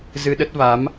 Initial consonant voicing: voiced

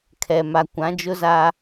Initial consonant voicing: voiceless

